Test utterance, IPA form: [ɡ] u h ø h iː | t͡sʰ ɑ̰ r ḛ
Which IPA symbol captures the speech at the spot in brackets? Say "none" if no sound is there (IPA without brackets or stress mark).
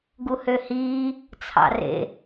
ɡ